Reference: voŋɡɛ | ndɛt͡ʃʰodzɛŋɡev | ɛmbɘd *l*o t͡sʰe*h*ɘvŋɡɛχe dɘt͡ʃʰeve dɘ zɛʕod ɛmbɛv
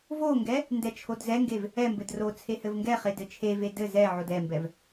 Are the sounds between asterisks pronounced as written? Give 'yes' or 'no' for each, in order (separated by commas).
no, yes